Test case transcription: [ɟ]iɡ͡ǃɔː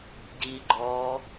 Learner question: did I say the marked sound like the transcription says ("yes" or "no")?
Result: yes